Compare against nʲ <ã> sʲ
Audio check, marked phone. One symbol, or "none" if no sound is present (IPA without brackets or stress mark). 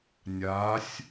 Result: a